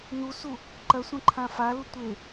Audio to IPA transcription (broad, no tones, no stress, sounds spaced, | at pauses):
n u s u | ǃ ɐ sʷ ɐ̃ ǃʰ ã f a l u tʷ e